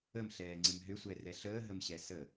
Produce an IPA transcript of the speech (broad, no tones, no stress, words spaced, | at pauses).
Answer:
əmɬɛːŋ͡ǀɪm ɦʏsʷɛrɛ ɬəːɦəmɕɛ sə